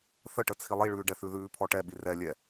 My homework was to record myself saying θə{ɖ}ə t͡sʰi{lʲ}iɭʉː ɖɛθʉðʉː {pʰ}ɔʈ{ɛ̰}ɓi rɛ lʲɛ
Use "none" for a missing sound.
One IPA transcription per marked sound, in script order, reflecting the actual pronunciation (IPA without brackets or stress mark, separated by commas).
ʈ, lˠ, pʰ, ɛ